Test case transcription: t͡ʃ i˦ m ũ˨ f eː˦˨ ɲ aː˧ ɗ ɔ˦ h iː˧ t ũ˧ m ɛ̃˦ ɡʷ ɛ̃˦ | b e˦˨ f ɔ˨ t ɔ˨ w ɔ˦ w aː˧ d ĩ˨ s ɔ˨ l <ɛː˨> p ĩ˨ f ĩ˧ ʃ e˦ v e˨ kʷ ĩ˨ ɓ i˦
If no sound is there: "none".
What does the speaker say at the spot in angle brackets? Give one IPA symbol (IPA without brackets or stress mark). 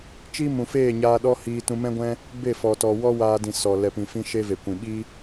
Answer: ɛ˨